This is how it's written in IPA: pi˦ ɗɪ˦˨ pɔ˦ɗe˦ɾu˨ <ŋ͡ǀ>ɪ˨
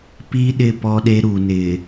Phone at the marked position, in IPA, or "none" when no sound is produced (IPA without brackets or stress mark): n